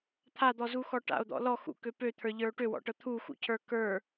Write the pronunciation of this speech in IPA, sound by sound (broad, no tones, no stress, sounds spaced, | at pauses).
t̪ʰ a d̪ ɔ z u x ɔ ʈ a̰ o̯ d̪ ɔ̰ l ɔ x ṵ k ø p ø t̪ʰ ə˞ ʎ ə˞ o̯ ʈ ø w ɔ̰ ʈ ɤ t̪ʰ u x ṵ cʰ ə˞ k ə˞